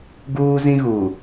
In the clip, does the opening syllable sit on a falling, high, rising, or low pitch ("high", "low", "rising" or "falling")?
high